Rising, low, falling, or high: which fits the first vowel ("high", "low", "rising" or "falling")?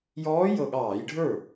rising